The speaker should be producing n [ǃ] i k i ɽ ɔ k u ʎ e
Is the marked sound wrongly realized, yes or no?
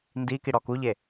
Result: yes